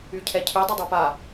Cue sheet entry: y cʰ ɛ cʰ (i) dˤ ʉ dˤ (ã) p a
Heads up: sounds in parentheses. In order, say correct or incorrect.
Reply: incorrect: y, incorrect: a

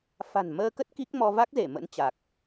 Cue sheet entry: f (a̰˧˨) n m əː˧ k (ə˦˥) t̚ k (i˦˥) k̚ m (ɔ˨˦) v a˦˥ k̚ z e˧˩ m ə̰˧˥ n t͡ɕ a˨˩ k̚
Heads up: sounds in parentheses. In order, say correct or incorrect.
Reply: incorrect: a̤˨˩, correct, correct, incorrect: ɔ˧

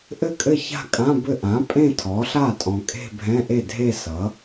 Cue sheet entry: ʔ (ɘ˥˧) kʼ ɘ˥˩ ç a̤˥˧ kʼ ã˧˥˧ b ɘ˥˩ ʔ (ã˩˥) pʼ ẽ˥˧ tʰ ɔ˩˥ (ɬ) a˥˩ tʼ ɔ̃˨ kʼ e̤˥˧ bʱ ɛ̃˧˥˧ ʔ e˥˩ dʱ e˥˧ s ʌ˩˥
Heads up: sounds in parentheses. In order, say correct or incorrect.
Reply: incorrect: ɘ˥˩, correct, correct

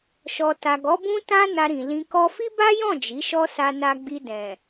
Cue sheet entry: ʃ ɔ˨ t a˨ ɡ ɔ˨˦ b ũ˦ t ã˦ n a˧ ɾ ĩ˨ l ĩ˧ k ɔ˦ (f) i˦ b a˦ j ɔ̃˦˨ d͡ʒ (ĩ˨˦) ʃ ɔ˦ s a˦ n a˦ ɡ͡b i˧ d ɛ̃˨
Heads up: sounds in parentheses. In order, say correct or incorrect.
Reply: correct, incorrect: i˨˦

